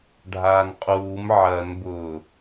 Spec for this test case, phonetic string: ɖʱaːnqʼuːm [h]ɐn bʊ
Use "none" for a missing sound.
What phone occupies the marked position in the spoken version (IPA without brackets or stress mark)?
ʕ